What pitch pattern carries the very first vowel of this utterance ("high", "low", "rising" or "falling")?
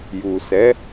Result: low